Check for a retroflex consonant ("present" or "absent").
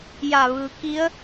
absent